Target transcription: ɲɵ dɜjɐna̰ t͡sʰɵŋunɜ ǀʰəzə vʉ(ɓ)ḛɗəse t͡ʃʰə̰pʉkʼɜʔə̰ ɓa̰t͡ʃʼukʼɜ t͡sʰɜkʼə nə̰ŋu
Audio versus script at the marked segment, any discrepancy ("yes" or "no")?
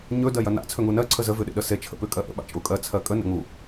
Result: yes